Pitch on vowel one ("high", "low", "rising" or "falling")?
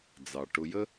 low